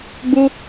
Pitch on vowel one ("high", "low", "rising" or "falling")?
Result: high